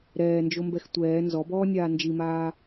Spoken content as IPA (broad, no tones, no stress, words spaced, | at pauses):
ɾɛːnd͡ʒombɛx tʷɛː nzɔbɔːnʲaː nd͡ʒimaː